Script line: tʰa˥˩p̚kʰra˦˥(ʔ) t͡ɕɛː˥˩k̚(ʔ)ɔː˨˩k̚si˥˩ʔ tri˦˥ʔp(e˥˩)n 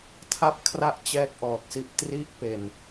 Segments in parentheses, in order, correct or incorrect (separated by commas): correct, correct, incorrect